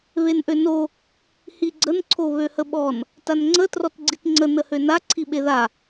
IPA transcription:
β e n ʔ ø n o | h i ɡ͡ǀ ə n ǀʰ o β ø h ə ɓ ɔ n | t a n ŋ͡ǀ ə t r ɔ t ɡ͡ǀ i t ŋ͡ǀ ə n ə h ø n a ǀʰ i ɓ e ð a

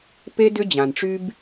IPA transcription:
p e˦ d ʏ˦ d͡ʑ ã˨ n ʈ͡ʂ y˦ b

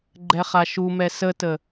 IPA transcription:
ɡ͡ǃ ɛ χ a ʃ u m ɛ s ə t ə

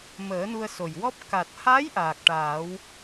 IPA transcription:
m əː˨˩˦ n u˧ ə̯ s o˨˩ j w ɔ˦˥ p̚ k a˨˩ t̚ h a˧˥ j ʔ aː˨˩ k̚ ʈ aː˨˩˦ w

